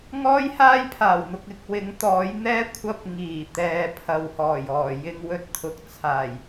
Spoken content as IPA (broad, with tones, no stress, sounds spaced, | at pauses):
ŋ ɔː˥ j h aː˥ j pʰ aː˨˩ w n̪ ʊ˨ k̚ ɪ˨˥ k̚ w ɪ˨˥ ŋ t̪ ɔː˨˥ j n̪ ɛː˥ kʷʰ ɐ˥ p̚ ŋ iː˨˩ t̪ ɛː˨˧ pʰ ɐ˨ w h ɔː˨˩ j ɔː˨˩ j ɪ˧ ŋ w ɵ˧ t̚ t̪ʰ ʊ˨ k̚ t͡sʰ aː˨˩ j